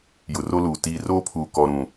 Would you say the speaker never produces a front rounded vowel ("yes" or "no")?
yes